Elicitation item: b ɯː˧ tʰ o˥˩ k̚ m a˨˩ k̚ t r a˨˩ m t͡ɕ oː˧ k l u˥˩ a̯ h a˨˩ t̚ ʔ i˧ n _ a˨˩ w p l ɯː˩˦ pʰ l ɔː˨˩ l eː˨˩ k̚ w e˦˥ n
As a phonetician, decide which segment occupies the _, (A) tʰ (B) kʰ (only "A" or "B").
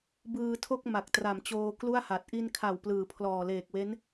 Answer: B